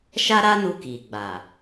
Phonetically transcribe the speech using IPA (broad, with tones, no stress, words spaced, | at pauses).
ʃa˦ɾa˦nu˧ ki˨ɡ͡ba˨